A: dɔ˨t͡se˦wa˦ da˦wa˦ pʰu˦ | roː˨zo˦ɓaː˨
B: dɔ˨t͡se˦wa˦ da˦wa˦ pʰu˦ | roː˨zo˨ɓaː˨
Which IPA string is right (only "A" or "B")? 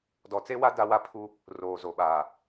B